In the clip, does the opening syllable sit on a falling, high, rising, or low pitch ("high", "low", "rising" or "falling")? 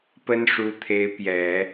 high